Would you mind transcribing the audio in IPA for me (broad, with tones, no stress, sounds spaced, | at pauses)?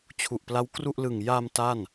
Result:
t͡ɕʰ u˨˩ ʔ p l a˦˥ w k r u˥˩ ʔ l ɯ˨˩ ŋ j a˧ m t a˥˩ n